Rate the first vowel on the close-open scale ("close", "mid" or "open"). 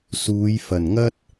close